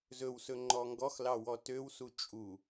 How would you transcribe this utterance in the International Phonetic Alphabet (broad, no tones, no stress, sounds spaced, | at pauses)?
z ɵ w s ɵ ŋ͡ǃ ɔ ŋ ɡ ɔ x l ɑ w ɔ t ø w s u t͡ʃʼ u